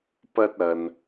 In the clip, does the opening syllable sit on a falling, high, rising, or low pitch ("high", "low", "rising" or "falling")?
high